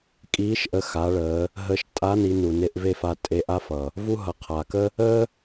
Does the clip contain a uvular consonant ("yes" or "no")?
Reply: yes